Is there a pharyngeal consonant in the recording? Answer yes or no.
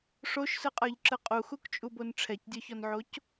yes